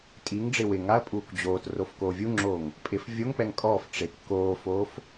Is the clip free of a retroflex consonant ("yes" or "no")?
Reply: no